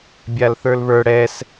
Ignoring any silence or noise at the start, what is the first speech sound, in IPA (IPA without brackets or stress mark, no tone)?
bʲ